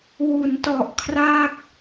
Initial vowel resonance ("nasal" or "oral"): oral